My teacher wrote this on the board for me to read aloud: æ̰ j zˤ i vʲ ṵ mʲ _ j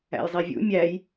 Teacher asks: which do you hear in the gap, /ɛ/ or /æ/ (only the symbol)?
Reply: æ